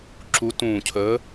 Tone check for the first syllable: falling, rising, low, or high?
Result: rising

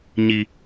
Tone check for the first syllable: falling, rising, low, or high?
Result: high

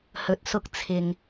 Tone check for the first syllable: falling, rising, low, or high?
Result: low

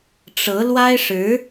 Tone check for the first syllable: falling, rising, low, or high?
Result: rising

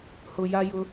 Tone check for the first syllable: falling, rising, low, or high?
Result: low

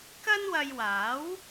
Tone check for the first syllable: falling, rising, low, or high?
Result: high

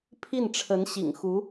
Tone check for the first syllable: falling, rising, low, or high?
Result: falling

